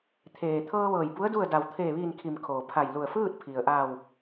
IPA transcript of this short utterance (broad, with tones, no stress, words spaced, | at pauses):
t̪ʰeː˩t̪ʰɤː˧ ʋɤː˧˩jbu˧˥ə̯ du˥˨ə̯da˧˩w t̪ʰeː˧˩ʋiː˧˩nkʰiː˩m kʰoː˩pʰa˧˩jlu˧˩ə̯ fɯː˥˨t̚ pʰi˩ə̯ʔa˧˩w